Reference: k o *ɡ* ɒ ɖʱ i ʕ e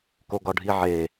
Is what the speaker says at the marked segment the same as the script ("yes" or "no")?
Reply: yes